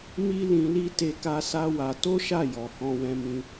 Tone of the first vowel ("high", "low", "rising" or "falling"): high